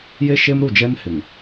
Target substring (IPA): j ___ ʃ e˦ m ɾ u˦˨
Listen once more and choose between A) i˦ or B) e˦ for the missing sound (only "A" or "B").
B